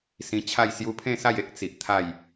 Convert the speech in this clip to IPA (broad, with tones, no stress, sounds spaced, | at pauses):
s ĩ˧ t͡ɕʰ a˥˧ j s j u˧ pʰ ẽ˥˧ s a˥˧ j e˦ k̚ t͡s i˨ ʔ t̪ʰ a˥˧ j